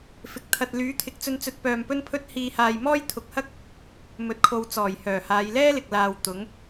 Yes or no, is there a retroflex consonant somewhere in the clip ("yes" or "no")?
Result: no